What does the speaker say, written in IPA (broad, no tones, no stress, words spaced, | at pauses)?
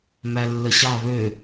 mælːəɕɑ βø